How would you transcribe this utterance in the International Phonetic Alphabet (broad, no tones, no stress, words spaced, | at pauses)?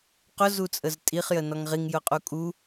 qʊzut͡sʼəz tʼiχjə nɔŋʁiŋjʊqʼu kʼu